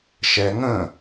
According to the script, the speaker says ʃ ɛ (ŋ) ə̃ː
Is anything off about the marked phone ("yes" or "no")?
no